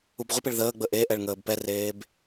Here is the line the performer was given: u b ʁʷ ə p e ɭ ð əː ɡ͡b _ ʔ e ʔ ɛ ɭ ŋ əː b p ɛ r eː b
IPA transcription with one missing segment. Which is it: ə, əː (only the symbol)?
ə